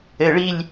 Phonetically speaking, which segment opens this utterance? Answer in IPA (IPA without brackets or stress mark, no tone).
ɘ